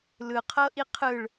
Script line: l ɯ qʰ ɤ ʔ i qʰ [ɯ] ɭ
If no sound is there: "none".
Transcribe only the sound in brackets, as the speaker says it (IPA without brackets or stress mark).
ɯ